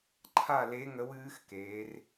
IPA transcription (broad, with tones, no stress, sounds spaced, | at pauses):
ǃʰ a˥˨ l e˧˥ ŋ ə˧˥ w ɨː˧˥ x k eː˩˧ r